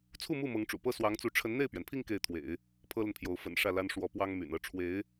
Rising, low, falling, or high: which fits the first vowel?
falling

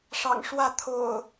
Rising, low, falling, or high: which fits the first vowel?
low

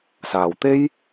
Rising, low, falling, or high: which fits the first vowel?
low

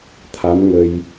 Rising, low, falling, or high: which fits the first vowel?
rising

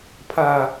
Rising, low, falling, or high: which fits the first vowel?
low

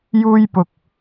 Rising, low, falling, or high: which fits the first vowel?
high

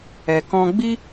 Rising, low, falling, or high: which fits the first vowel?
low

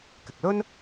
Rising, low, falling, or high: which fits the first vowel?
low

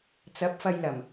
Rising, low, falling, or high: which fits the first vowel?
rising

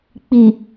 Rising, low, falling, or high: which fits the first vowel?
low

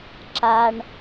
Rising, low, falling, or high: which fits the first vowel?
low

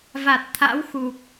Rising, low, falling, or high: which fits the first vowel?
low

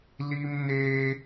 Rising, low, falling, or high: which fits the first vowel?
high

